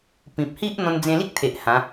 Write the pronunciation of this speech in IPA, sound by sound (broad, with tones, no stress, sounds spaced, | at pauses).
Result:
p ĩ˨ p̚ h i˦ ʔ n̪ ɔ̃˧ n d͡z ẽ˧ l i˦ k̚ t̪ʰ e˨ ʔ h ã˨˦